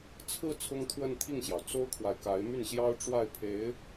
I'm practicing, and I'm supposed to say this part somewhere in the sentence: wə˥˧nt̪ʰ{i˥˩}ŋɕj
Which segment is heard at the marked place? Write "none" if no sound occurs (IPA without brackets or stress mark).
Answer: i˥˩